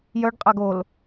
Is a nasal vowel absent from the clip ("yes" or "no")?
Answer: yes